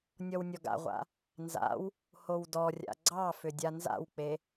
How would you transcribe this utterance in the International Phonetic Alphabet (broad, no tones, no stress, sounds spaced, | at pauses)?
nʲ ɔ w nʲ ɔ ɡ a̰ ʁʷ a̰ | n z a̰ w | h o w d ɔ rʲ a̰ ɡ͡ǀ ɑ f ʏ dʲ a n z a̰ w k͡p e